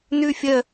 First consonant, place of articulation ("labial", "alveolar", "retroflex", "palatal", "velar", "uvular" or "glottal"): alveolar